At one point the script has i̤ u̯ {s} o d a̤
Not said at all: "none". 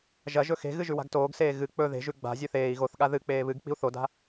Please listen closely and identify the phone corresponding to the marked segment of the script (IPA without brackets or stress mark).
θ